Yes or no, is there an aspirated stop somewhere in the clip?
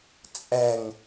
no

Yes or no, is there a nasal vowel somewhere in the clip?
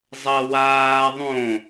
yes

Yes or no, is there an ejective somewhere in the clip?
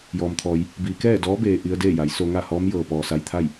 no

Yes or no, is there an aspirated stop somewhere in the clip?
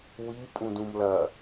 no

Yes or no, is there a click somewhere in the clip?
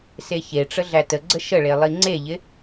yes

